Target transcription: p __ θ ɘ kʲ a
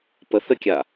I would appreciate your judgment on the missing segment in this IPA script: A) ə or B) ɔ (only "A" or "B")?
A